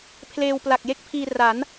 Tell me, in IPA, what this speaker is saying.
pʰ l eː˧ w p l a˨˩ k̚ j e˥˩ k̚ pʰ iː˧ r a˩˦ n

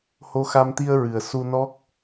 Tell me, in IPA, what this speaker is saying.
h o˧ x a˧ m t̪ i˧ ə̯ ɹ ɨ˨˩ ə̯ s u˧ n ɔ˦˥ k̚

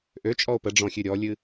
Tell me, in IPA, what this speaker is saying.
ʔ ø t͡ʃʼ ɔ o̯ p ə ɖ͡ʐ ɔ̃ xʲ ʉ ɾʲ ɔ lʲ ɨ

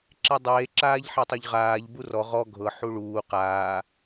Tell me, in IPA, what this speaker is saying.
ǁ e dˤ eː ǁ aː ʎ ħ e tˤ o ʎ ʁ aː ʎ b u r ɔ ʁ ɔ ɡʱ ɤ ħ u ɭ uː q aː

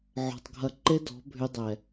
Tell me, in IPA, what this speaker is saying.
ʕ ɔ̤˨ tˤ ɡʱ ɐ˧ ǃ e˦ d ɔ̤˨˦ bʱ y˧ dˤ ɛ˨

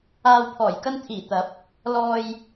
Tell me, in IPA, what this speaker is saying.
aː˨ w pʰ ɔː˨˩ j k ɐ˧ n t̪ʰ iː˨˩ t̪ ɐ˨˥ p̚ | l ɔː˨ j

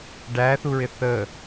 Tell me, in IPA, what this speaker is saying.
ɖ æ θ u ɹ ɪ θ ə

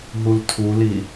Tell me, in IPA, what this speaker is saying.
ɦ u l tʰ u l i

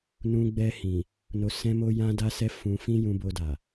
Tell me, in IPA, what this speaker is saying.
n ũ˧ ɡ͡b ɛ˧ h ĩ˨ | n o˧ s ɛ̃˦ m o˦ j ã˦ d a˦ s ɛ˦ f ũ˧ f ĩ˦ j ũ˧ b o˧ d a˨

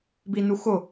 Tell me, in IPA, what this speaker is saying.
b i n u x ʊ

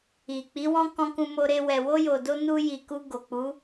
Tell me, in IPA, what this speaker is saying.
i˨ k͡p i˨˦ w ɔ̃˦ k ɔ̃˧ k ũ˧ m o˧ ɾ e˧ w ɛ˨ w o˧ j o˨ d o˧ n u˧ j i˨ k u˧ ɡ o˨ k͡p u˨˦

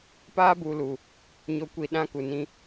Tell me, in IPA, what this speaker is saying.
p aː˦ b u˨ l u˨ | ɲ o˨ kʷ i˨ ɗ ã˦ k u˨ n ĩ˦

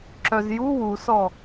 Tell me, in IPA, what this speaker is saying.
ǁ œ z j u w u s ɔ

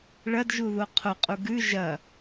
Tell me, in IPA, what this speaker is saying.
ɭ ɐ d ʒ u ð o qʰ o qʼ u ɡ ʉ ʒ ɐ

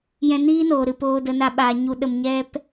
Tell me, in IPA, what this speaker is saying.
j ɛ̃˧ n iː˦ n oː˨ ɾ ɨ˨ p oː˧ d ə˧ n a˦ ɓ aː˧ ɲ u˧ ɗ ə˧ m ɲ ɛ˦ p

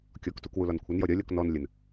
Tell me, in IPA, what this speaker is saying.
kʲ ɔ k t u k w u l ɒ n kʷʰ ə n j ɔ ɾʲ ɒ lʲ ɔ k n ɔ n lʲ ə n

